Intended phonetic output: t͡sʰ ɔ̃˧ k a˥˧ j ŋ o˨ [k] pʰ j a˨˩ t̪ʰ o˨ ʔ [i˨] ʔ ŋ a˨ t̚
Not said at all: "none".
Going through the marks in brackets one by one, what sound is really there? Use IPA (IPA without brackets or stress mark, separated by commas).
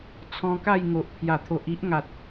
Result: ʔ, i˦